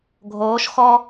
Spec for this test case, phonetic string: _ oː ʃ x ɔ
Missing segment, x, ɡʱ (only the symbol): ɡʱ